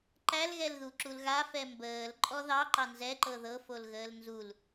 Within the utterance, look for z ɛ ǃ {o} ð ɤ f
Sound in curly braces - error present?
yes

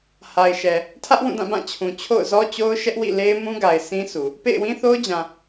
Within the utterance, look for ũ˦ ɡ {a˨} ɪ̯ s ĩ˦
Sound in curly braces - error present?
no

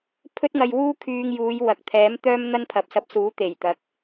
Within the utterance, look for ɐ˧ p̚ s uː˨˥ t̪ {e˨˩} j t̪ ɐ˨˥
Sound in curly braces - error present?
no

